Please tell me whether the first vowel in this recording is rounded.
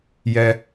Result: no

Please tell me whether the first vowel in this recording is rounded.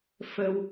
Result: no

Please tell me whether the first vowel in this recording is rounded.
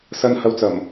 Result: no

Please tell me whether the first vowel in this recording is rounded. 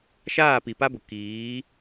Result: no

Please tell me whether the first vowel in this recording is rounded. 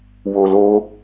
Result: yes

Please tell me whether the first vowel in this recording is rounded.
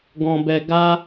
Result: yes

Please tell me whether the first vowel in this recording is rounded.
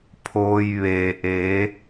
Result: yes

